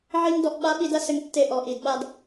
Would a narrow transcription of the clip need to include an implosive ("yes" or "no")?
yes